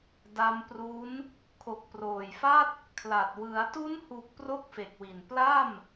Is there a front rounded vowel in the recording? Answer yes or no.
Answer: no